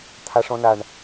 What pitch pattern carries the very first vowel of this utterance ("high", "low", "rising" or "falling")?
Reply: high